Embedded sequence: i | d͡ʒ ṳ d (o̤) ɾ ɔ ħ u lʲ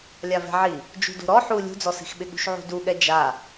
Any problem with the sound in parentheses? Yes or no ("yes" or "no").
no